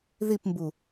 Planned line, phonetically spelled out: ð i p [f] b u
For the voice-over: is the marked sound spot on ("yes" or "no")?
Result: no